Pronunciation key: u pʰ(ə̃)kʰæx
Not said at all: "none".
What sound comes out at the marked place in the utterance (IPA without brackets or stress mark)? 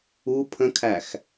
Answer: ə̃